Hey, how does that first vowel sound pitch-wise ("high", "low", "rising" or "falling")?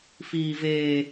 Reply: high